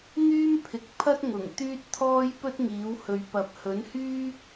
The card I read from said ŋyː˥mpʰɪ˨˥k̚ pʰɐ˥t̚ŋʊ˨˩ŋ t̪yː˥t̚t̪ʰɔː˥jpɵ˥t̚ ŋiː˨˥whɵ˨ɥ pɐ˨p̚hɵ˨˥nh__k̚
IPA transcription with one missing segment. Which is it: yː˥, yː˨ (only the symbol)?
yː˥